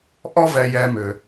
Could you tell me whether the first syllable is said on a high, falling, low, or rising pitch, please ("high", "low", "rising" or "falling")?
high